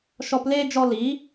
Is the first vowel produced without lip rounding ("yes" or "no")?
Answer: no